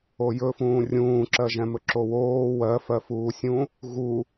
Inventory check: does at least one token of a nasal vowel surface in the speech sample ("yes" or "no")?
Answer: yes